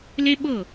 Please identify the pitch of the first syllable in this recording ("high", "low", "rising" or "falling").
high